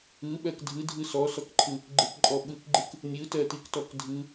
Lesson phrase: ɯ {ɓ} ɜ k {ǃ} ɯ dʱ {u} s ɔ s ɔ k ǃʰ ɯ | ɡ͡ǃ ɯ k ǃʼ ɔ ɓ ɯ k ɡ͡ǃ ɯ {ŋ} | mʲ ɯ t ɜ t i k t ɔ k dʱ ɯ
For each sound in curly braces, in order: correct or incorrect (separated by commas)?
correct, incorrect, incorrect, incorrect